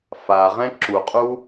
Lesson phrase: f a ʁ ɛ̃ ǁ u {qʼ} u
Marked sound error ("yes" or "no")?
no